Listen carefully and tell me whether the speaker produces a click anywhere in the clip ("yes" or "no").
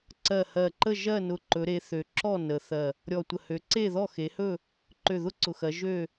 yes